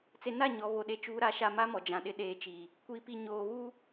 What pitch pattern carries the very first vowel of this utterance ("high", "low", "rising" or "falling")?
low